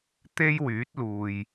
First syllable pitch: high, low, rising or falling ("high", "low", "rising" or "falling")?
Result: high